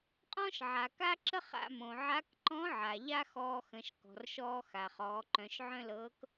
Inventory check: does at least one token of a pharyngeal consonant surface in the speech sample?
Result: yes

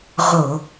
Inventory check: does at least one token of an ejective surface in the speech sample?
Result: no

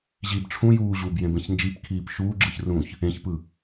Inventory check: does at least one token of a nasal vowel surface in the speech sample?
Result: yes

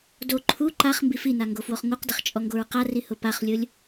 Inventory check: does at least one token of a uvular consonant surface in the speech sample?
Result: yes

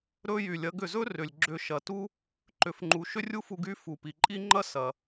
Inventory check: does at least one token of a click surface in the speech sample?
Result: yes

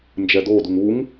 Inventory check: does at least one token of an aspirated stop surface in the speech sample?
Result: no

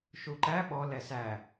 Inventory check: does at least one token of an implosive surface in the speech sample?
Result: yes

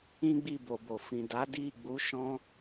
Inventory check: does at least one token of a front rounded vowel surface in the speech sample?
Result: no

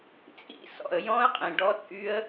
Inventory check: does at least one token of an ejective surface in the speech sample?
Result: yes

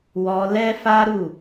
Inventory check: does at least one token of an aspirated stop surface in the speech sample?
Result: no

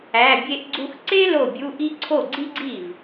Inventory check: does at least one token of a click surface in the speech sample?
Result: yes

